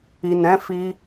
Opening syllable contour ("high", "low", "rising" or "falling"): low